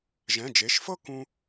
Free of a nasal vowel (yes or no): no